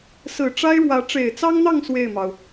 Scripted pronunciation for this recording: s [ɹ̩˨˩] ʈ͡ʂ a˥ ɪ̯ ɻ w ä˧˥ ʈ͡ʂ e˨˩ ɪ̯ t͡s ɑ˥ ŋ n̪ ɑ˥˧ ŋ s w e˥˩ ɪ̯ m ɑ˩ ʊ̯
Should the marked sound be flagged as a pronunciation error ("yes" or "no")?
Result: no